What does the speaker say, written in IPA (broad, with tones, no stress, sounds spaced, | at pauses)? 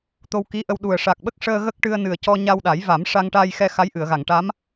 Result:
t̪ o˧ w k i˧˥ ʔ ə˧ w ɗ u˨˩ ə̯ ʂ a˨˩ k̚ ɓ ə˦˥ k̚ ʂ əː˧ ɣ ə˦˥ k̚ ʈ ɨ˧ ə̯ n ɨ˨˩ ə̯ c ɔ˧ ɲ a˧ w ɗ a˨˩˦ j v a˨˩˦ m ʂ a˧ ŋ ʈ a˧ j x ɛ˧ x a˧˥ j ʔ ɨ˨˩˨ ə̯ ɣ a˨˩˨ ŋ ʈ a˧˥ m